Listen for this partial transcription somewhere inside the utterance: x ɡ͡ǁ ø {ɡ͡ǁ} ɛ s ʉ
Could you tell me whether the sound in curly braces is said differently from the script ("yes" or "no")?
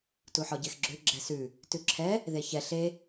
no